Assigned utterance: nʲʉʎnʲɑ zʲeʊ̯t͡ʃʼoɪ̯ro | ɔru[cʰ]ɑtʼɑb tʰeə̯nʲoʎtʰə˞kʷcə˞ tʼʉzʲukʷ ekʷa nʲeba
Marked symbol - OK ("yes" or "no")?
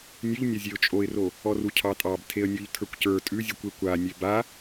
yes